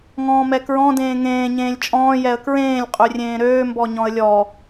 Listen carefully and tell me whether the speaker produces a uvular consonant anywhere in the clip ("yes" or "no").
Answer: yes